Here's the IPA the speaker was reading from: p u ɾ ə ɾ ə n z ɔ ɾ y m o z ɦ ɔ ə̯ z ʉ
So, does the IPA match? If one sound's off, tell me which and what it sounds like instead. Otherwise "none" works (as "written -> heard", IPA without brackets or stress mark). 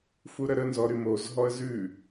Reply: p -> f